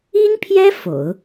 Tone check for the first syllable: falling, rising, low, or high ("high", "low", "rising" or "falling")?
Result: high